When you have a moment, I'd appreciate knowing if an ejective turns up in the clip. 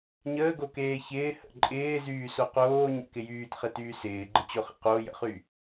yes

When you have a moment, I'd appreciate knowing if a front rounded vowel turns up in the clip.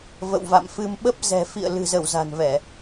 no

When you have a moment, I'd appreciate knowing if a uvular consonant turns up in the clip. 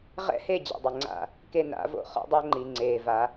yes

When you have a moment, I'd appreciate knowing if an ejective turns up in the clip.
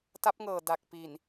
no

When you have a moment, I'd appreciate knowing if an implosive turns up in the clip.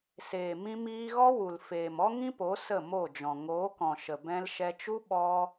yes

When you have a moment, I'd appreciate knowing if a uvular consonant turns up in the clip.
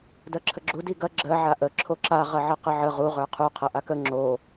yes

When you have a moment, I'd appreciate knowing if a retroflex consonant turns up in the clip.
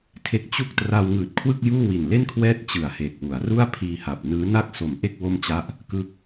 no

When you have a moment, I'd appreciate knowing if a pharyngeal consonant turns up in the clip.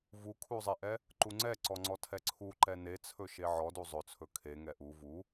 yes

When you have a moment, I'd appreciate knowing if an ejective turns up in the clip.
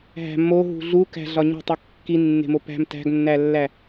no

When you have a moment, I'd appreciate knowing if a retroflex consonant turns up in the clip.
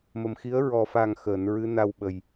no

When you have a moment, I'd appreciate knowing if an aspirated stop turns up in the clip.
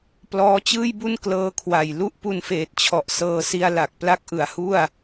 yes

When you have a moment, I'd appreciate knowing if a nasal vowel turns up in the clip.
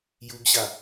no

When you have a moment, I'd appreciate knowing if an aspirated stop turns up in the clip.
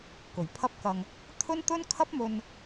yes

